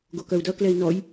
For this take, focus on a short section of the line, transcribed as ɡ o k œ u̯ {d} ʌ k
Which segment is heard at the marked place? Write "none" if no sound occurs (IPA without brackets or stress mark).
d